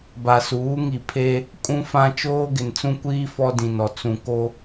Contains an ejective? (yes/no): yes